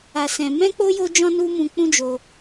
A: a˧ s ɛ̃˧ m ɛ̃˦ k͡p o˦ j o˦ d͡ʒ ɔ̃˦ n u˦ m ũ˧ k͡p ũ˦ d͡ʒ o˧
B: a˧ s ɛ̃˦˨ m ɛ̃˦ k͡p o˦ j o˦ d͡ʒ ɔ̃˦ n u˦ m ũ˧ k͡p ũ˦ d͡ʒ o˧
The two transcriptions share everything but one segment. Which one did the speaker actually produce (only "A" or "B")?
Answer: A